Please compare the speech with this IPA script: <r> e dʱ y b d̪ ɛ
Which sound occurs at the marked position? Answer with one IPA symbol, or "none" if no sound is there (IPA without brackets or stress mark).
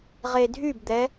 ʁ